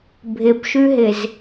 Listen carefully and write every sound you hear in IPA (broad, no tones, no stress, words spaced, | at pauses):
bʱɪbʃʉɦɪz